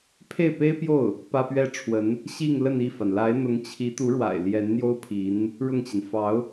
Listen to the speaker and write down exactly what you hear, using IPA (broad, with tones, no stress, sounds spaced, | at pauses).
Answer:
pʰ e˥˩ ɪ̯ p e˥ ɪ̯ p j o˥˩ ʊ̯ | p ä˥ p ɥ ɛ˥ ʈ͡ʂʰ w ə˧˥ n | ɕ i˥˧ ŋ l ə˥˧ n i˥˩ f a˩ n l a˧˥ ɪ̯ n̪ ʊ˧˥ ŋ t͡ɕʰ i˧˥ t̪ u˧˥ ɻ w a̰˨˩ ɪ̯ l j ɛ˧˥ n n̪ j o˥ ʊ̯ pʰ i˧˥ n | ɻ ʊ˥˩ ŋ t͡ɕ i˩ n f ɑ˧˥ ʊ̯